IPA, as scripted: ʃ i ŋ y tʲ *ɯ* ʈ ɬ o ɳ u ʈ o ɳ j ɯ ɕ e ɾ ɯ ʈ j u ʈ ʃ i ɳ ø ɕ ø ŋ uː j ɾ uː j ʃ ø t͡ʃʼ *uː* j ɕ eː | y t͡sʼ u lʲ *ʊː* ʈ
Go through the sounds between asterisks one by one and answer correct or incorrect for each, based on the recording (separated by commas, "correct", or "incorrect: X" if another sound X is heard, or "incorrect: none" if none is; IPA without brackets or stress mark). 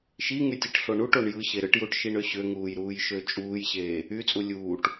correct, correct, incorrect: uː